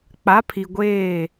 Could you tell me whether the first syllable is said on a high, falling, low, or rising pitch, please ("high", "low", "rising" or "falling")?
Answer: rising